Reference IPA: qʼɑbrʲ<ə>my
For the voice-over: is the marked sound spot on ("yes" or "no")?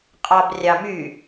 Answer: no